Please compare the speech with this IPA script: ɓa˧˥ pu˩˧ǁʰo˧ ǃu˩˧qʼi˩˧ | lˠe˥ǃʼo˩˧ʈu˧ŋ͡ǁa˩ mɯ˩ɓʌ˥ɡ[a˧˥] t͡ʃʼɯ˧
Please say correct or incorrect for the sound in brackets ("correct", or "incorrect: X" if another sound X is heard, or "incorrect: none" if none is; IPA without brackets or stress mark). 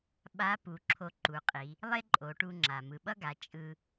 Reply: incorrect: a˩˧